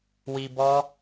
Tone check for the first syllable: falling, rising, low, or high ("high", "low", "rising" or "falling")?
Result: low